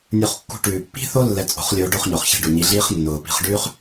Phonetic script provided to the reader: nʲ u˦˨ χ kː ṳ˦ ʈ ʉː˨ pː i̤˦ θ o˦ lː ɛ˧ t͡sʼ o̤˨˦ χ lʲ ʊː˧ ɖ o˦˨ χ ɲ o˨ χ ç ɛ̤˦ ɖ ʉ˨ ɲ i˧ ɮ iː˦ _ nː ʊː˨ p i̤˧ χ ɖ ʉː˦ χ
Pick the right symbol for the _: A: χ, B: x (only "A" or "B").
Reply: A